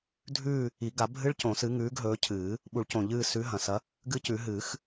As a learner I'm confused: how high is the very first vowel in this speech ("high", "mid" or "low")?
high